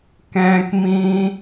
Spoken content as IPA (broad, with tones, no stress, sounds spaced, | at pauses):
k ɛ̃ː˦ k m ĩː˦